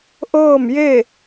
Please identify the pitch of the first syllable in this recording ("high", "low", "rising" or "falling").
falling